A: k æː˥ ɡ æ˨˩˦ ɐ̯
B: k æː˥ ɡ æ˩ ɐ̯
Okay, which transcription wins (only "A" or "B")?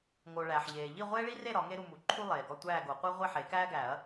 A